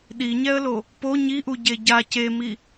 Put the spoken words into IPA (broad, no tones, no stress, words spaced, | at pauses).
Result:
ɗiɲɛə̯lo | po ɲiʔu ɟeɟa cemi